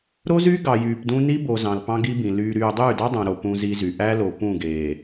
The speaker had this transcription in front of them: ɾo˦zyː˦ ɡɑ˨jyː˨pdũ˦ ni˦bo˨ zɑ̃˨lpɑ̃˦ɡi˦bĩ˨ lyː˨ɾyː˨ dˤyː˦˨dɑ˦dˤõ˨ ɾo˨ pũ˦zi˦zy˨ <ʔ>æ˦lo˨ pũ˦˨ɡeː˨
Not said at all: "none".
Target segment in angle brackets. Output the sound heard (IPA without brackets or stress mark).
ʔ